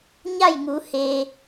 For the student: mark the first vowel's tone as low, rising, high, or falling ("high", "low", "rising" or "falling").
falling